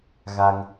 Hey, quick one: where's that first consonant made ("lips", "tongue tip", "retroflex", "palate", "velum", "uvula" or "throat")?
velum